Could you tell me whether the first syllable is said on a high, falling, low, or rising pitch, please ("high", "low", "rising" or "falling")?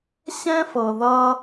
high